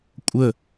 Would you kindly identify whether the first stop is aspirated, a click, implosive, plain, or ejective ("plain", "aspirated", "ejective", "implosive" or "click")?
ejective